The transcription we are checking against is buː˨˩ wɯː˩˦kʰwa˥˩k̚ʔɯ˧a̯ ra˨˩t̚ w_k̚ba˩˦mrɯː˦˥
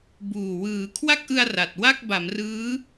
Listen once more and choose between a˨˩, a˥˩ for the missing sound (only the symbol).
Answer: a˥˩